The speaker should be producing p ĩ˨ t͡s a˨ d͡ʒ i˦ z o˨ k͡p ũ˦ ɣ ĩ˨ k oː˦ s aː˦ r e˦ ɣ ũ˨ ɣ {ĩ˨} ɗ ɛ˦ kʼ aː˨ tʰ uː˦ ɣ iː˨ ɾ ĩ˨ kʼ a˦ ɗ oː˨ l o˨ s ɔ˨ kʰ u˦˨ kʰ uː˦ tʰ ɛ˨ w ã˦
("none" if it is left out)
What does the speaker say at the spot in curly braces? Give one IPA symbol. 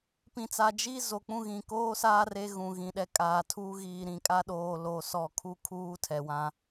ĩ˨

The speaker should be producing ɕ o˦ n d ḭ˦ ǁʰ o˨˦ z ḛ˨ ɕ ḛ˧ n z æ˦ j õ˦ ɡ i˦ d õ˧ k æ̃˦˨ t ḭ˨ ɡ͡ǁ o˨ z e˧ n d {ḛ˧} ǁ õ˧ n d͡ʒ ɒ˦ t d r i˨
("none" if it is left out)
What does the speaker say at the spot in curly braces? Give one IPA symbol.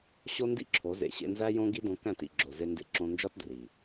ḛ˧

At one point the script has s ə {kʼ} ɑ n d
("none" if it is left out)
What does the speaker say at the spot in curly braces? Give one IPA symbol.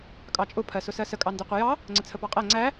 kʼ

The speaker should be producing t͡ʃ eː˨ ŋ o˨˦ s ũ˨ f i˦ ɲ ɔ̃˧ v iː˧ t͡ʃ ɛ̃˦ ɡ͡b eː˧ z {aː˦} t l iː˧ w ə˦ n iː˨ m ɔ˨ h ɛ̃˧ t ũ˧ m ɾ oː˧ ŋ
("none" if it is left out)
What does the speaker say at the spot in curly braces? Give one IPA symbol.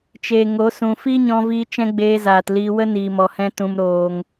aː˨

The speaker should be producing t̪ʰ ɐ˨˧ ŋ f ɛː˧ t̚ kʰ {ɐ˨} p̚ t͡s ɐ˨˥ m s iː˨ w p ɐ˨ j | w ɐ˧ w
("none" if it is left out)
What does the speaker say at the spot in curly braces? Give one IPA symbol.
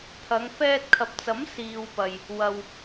ɐ˨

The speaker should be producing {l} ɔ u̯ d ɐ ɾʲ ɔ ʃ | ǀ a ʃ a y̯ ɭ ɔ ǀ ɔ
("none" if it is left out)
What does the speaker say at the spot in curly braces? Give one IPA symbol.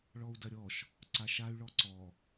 ɭ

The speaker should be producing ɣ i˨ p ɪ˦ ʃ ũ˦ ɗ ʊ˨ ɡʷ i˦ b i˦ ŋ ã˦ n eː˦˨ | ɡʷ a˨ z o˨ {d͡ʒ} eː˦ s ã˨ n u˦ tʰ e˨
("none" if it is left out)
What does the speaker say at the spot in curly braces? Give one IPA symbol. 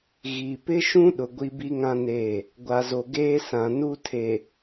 ɡ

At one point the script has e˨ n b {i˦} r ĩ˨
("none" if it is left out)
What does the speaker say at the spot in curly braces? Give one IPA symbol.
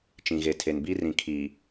i˦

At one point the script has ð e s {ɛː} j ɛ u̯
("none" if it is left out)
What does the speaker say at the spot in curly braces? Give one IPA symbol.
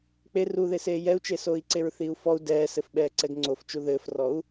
eː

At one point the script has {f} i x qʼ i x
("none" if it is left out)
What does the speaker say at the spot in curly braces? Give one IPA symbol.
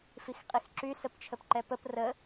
f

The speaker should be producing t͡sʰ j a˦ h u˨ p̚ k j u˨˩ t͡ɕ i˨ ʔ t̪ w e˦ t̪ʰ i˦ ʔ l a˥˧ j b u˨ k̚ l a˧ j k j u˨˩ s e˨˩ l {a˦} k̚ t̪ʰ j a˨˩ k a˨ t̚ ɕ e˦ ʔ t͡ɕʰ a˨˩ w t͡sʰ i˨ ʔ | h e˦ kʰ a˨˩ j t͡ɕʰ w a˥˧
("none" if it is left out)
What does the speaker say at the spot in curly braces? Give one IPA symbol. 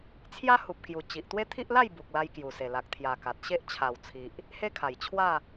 a˨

